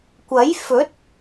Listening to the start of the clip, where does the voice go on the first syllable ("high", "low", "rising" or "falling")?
rising